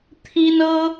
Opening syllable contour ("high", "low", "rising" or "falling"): high